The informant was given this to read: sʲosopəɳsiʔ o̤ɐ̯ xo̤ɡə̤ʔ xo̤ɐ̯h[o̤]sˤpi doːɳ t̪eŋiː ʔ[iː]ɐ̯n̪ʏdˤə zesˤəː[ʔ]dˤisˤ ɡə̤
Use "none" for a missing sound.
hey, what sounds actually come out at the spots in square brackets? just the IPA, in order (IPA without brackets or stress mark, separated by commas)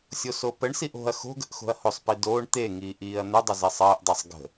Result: o, iː, ʔ